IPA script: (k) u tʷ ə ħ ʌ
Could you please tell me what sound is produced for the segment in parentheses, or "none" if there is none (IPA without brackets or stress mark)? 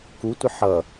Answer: k